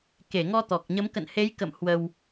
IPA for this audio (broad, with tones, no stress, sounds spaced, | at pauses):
k e˧˩ ŋ ɔ˧ t̪ ɔ˨˩ k̚ ɲ ə˨˦ m k ə̰˧˨ n h e˨˦ j k ə̰˧˨ m h w ə˧ w